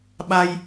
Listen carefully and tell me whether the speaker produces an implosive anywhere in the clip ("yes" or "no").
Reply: yes